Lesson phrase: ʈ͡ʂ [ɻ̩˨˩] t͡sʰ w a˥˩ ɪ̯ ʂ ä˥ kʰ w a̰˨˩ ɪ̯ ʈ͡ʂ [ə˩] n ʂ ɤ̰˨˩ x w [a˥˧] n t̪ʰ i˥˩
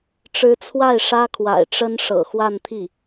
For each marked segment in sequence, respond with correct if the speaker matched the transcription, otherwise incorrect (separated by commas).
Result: incorrect, incorrect, correct